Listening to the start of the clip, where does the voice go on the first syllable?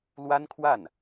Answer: high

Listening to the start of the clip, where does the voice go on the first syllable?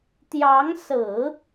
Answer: rising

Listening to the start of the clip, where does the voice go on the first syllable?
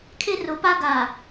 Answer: high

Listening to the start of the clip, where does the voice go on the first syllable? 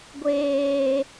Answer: low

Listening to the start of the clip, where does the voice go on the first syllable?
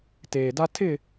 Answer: low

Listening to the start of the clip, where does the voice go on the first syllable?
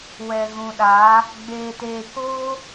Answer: low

